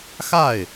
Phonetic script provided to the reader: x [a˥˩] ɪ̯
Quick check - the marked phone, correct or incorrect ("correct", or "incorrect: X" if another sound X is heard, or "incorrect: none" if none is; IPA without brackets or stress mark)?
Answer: correct